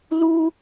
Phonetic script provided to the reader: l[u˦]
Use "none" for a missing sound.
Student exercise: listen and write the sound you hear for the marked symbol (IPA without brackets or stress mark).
u˦